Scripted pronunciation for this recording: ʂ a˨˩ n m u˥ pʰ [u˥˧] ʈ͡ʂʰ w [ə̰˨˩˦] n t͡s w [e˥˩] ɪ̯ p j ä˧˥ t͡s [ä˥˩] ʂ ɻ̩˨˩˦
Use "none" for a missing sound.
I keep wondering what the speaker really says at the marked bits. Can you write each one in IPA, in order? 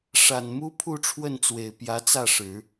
u˥˧, ə˥˩, e˨˩, ä˥˩

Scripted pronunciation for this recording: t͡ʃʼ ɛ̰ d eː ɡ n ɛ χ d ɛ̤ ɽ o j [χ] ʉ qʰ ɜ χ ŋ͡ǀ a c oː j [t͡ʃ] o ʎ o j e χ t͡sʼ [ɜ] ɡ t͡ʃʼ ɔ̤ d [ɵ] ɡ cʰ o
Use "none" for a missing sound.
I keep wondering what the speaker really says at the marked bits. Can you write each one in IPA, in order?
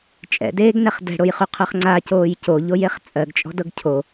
χ, c, ɜ, ɤ

